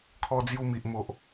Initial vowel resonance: oral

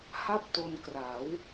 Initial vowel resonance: oral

